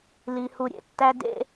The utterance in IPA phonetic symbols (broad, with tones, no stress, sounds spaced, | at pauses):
l i˧ h u˧ ɾʲ ḛ˧ tː æ˦ d ḛ˦